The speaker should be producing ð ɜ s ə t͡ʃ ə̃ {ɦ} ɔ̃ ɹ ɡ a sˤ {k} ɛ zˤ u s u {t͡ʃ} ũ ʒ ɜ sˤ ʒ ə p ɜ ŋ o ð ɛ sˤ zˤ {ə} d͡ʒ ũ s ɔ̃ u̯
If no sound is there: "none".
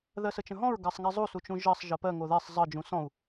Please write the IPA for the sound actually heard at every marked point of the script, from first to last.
ɦ, ŋ, t͡ʃ, ə

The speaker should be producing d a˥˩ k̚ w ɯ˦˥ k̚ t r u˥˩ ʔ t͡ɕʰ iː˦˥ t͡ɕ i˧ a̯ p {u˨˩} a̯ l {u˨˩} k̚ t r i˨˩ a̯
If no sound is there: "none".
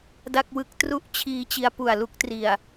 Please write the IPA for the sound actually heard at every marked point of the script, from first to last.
u˨˩, u˦˥

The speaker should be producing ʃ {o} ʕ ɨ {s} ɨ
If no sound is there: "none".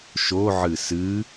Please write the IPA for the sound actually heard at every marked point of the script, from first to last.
o, s

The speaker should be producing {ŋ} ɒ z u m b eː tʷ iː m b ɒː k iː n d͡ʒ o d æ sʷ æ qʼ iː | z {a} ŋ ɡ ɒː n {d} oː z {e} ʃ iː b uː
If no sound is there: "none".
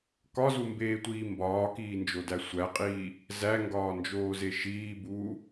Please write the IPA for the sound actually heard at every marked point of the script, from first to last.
k, æ, d͡ʒ, e

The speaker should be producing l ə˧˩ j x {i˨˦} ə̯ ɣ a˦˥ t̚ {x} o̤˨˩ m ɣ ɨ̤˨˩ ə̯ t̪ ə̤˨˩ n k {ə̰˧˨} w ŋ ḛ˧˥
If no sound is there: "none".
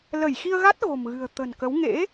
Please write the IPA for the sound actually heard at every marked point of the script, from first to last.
i˧, ɣ, ə˨˦

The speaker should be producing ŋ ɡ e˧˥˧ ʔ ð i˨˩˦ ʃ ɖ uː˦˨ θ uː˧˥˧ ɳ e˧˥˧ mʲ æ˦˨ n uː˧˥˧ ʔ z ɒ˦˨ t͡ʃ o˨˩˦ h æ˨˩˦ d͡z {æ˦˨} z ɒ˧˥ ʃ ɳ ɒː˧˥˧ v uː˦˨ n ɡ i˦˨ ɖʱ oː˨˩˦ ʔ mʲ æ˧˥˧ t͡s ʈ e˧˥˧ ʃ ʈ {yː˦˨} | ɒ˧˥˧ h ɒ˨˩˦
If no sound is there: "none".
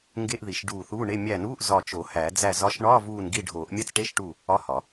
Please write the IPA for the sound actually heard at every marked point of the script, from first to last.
æ˦˨, uː˦˨

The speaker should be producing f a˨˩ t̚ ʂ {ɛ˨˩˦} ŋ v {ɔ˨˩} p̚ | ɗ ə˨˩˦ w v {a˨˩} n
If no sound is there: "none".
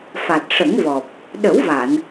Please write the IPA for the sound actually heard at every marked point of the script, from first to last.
ə˨˩˦, ɔ˨˩, a˨˩˨

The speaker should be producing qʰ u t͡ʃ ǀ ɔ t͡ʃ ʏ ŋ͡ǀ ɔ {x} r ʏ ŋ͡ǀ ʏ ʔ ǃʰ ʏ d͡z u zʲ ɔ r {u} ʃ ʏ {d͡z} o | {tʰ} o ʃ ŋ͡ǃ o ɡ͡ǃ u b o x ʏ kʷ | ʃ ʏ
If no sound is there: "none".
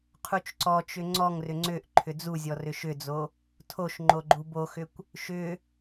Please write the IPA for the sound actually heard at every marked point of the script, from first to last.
ŋ, ʏ, d͡z, tʰ

